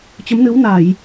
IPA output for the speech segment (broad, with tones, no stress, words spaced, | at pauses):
t͡ɕə˨˦mnɨ˨˦wna˧˩˨j